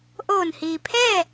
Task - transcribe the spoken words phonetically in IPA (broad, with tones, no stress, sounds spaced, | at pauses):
ʔ oː˧˩ n h iː˩ pʰ ɛː˥˨